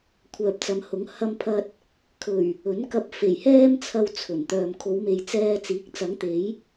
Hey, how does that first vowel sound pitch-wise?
low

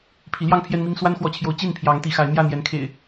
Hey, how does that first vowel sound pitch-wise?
rising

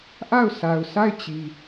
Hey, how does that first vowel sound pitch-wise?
falling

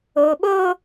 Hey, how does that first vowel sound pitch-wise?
low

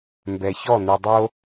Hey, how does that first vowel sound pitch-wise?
low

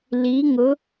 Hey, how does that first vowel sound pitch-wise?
rising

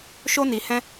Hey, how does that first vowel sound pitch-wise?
high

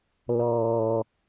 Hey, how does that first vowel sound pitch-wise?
low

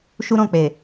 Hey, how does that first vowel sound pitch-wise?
high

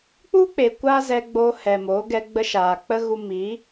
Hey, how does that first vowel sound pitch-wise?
high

